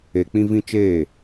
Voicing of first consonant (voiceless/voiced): voiceless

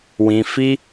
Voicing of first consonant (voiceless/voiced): voiced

